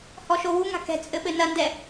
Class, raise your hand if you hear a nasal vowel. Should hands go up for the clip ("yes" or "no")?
no